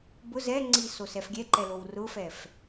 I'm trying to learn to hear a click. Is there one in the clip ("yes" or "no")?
yes